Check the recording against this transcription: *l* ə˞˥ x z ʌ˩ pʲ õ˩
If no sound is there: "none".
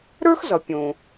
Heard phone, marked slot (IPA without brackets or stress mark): ɾ